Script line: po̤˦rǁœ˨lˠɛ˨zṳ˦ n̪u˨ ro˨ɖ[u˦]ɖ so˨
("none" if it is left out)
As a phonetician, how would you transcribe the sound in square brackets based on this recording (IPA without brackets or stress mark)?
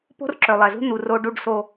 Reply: u˨